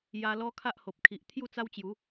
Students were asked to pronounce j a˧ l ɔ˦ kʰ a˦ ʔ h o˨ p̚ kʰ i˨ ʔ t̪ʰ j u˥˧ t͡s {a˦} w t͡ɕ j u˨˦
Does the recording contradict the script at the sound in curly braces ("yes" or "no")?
no